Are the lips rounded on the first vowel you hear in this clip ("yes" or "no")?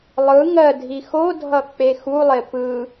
no